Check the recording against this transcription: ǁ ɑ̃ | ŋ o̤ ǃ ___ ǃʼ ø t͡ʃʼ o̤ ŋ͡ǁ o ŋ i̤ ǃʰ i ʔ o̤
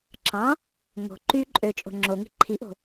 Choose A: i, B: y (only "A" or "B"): B